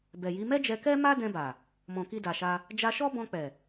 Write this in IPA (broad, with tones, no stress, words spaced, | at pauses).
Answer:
bɛ˨ji˨˦ mɛ˦d͡ʒɛ˧ kɛ˦ma˦dɛ̃˧ba˨ | mɔ̃˨ki˧da˨ʃa˧ | d͡ʒa˧ʃɔ˦bɔ̃˧k͡pɛ˨